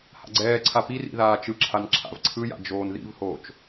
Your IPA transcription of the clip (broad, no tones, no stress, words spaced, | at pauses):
ha̰ɡ͡ǀɛːǀʰa pirḭ ðaːt͡ʃɯǁʰan ǁʰa̰vǀʰɯja̰ d͡ʒoːnðḭvhoːt͡ʃ